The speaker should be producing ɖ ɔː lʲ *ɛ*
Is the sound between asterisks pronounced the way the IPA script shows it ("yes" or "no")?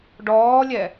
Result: yes